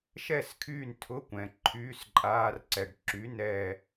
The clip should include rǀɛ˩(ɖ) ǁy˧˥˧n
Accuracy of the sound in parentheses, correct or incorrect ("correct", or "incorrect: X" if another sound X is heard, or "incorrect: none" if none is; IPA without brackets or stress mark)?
correct